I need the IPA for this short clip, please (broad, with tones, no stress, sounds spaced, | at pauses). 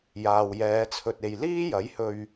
j aː˨ w j ɛː˨˧ t͡sʰ ɵ˨ t̚ e˨ j l iː˥ j ɐ˨˥ j h ɵ˧ ɥ